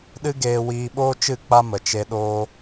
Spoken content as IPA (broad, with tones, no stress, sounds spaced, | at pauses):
ɗ ɨ˦ ɡ eː˧ w iː˧ ɓ oː˦ t͡ʃ ɨ˦˨ k͡p a˦ m ə˨ t͡ʃ e˧ ɗ oː˧